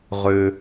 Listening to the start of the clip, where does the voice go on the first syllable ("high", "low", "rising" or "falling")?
low